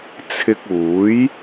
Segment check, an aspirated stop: present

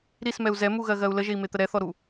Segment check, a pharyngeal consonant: absent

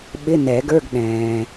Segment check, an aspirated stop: absent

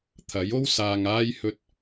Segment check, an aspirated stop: present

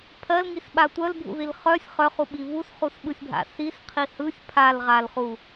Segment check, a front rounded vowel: present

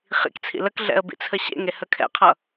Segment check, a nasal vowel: absent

